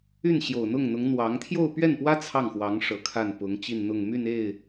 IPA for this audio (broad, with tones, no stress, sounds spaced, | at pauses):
y˥˩ n ɕ j o˨˩ ʊ̯ n̪ ʊ˥˩ ŋ n̪ ʊ˧˥ ŋ n̪ w ɑ˧˥ ŋ t̪ʰ j o˥˧ ʊ̯ p ɥ ɛ˥˩ n p w ä˥ t͡sʰ ɑ˥˩ ŋ x w ɑ˧˥ ŋ ʂ ɤ˨˩ kʰ a˥˩ n p ʊ˧˥ ŋ t͡ɕ i˥˧ n n̪ ʊ˥˧ ŋ m y˥˧ n e˥˩ ɪ̯